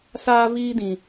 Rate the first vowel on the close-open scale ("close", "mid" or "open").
open